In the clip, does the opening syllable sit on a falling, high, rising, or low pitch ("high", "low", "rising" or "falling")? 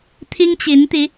high